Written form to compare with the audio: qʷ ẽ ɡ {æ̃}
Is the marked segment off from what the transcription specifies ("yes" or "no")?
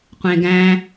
no